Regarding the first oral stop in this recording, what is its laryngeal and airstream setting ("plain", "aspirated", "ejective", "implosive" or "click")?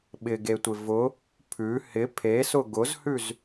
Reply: implosive